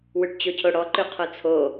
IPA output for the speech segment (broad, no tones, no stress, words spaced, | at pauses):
wʉʈt͡ɕocʰoɽɔ ǃʉqʰot͡sʰo